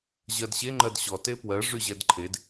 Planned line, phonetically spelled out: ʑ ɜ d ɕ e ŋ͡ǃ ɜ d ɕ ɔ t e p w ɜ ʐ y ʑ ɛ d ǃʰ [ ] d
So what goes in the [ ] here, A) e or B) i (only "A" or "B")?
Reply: A